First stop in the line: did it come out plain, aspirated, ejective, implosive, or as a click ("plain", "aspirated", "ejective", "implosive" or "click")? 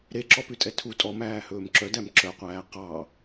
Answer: click